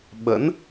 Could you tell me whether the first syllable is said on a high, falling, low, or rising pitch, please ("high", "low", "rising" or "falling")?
rising